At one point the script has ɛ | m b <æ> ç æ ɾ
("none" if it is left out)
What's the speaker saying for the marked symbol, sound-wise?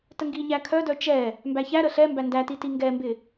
æ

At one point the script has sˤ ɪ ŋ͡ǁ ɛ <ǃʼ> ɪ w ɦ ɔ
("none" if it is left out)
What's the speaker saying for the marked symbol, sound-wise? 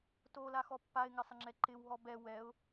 ǃ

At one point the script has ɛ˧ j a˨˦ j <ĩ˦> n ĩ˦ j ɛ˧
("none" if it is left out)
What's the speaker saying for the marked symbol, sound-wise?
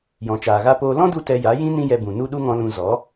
ĩ˦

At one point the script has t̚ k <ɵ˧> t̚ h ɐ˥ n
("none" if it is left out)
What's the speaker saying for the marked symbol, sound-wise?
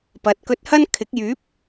ɵ˧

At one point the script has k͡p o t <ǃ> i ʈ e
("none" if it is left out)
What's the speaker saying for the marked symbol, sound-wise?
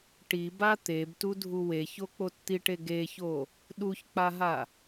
t̪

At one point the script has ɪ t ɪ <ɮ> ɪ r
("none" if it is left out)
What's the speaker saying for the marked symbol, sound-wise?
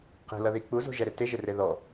ʒ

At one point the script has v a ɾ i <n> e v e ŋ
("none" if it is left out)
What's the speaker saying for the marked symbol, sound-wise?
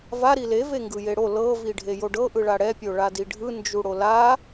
l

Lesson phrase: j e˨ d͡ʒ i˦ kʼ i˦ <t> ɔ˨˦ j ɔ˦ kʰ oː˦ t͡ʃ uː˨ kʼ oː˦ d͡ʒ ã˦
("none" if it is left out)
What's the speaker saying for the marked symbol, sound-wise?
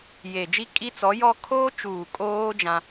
t͡s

